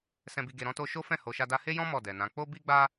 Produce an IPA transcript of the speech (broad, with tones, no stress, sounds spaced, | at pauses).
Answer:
s ɛ̃˨ b i˨ ɡ e˨ ɾ ɔ̃˧ t o˧ ʃ o˦ f ɛ̃˦˨ h o˨ ʃ a˧ d a˧ h e˦ j ɔ̃˦ m ɔ˦˨ d ɛ˨ n ã˨˦ k͡p o˦ b i˦ ɡ͡b a˦